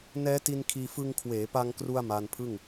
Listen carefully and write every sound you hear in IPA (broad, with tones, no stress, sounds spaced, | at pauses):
n ɛː˦˥ t i˧ n kʰ iː˧ f ɯ˧ ŋ kʰ w eː˩˦ p a˧ ŋ k r u˧ a̯ m aː˧ n pʰ ɯ˥˩ ŋ